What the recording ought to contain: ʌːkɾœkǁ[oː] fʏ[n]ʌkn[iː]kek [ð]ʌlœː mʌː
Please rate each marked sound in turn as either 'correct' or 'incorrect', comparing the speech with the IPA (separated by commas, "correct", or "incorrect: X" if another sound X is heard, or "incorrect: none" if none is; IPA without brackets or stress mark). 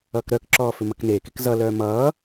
incorrect: ɔː, incorrect: m, incorrect: eː, incorrect: z